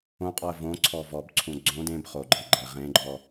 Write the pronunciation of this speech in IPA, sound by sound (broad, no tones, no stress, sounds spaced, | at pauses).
õ qʼ ɔ ə̯ v õ ǀʰ ɔ v ɔ b ǀʰ ũ ɡ͡ǀ õ d ẽ b χ o ɡ͡ǃ e ɡ͡ǃ ɛ ʁ ẽ ɡ͡ǃ ɔ